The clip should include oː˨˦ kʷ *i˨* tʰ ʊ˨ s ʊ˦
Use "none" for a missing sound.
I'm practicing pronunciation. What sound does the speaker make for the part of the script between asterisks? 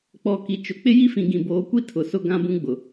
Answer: i˦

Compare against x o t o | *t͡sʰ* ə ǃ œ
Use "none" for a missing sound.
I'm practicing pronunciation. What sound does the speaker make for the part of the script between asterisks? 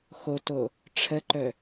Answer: ʈ͡ʂʰ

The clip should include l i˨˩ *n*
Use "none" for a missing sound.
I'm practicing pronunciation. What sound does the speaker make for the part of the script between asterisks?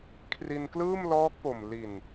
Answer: n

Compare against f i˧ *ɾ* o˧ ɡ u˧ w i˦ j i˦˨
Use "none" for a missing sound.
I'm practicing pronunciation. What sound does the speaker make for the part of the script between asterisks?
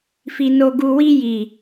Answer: n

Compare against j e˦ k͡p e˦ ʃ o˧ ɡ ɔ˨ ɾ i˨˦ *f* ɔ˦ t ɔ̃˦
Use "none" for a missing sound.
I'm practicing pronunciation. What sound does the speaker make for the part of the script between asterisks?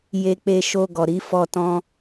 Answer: f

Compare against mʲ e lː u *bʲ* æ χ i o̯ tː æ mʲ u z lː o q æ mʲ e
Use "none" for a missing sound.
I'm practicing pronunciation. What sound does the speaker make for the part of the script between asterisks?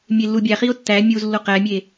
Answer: bʲ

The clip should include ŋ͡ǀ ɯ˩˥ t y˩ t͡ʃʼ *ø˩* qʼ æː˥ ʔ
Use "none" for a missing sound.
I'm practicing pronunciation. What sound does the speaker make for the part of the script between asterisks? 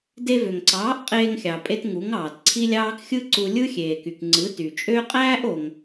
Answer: ø˥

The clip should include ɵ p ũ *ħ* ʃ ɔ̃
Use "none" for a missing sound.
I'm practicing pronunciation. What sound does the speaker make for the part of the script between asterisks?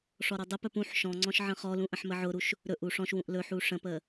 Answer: ħ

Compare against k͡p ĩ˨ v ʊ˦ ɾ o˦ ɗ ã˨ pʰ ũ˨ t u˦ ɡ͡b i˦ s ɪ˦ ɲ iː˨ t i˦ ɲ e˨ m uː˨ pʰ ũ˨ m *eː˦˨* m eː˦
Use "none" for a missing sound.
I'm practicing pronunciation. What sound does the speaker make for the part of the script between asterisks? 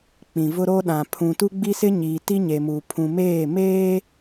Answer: eː˦˨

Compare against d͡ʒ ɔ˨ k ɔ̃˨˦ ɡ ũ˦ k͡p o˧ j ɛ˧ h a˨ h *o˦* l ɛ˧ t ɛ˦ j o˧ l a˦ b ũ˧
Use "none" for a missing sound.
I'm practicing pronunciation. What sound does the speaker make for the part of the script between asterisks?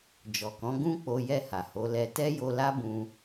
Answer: o˨˦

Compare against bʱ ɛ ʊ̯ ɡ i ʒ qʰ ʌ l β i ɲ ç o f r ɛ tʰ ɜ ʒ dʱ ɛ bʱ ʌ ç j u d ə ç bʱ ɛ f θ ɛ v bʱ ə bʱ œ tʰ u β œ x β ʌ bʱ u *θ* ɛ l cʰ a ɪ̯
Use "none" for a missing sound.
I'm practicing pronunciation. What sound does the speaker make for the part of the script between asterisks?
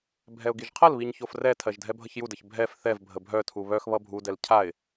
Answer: d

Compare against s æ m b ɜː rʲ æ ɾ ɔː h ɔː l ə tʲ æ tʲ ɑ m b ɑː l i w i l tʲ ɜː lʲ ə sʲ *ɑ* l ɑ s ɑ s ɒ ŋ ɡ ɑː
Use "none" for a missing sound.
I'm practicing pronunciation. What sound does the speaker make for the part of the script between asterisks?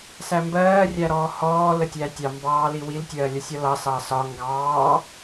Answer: ɒ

